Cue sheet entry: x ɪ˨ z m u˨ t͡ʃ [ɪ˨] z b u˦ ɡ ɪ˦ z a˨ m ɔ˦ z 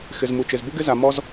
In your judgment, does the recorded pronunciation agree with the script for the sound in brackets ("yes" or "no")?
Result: yes